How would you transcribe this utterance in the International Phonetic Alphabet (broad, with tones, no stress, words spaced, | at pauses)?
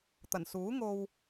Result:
t̪ɐ˨˩nsuː˨˥ŋo˧w